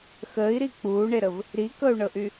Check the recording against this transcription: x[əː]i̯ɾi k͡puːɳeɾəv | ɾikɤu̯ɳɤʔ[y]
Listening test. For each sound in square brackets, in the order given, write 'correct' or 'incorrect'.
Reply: correct, correct

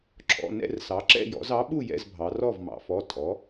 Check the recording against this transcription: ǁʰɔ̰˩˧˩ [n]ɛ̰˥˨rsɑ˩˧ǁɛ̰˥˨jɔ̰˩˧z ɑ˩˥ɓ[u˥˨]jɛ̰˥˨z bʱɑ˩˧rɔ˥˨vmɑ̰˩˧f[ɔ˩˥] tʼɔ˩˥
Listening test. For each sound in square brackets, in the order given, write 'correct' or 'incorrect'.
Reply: correct, correct, incorrect: ɔ˩˧˩

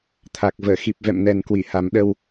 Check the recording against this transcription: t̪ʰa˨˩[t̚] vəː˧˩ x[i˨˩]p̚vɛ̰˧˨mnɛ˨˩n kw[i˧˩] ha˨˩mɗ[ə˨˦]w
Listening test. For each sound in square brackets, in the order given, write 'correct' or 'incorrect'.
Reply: incorrect: k̚, correct, correct, incorrect: ə˧

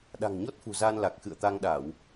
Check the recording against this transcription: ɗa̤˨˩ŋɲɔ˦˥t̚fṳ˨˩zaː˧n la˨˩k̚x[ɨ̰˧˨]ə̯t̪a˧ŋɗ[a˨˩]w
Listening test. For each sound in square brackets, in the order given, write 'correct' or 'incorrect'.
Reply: correct, incorrect: a˧˩˨

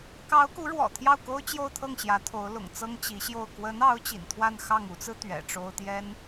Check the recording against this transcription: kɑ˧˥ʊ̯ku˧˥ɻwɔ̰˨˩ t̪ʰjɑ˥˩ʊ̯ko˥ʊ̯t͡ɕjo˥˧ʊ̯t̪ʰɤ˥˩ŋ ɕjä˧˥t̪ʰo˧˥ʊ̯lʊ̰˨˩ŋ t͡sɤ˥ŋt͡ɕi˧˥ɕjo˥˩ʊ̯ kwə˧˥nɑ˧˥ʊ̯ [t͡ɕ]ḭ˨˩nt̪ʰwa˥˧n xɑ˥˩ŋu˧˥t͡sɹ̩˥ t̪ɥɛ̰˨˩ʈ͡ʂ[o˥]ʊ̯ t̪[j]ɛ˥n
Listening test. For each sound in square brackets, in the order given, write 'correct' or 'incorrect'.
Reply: correct, correct, correct

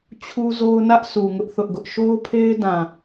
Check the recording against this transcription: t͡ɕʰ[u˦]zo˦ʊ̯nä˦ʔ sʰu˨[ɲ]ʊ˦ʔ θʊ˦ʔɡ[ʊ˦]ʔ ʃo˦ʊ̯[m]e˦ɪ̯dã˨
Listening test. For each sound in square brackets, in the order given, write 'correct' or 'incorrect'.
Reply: correct, incorrect: ŋ, correct, incorrect: pʰ

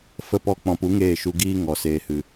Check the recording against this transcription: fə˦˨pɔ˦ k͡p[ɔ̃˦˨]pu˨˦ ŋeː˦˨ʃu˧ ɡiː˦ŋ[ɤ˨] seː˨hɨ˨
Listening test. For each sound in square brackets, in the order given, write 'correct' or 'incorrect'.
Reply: incorrect: ɔ̃˨, incorrect: ɔ˨

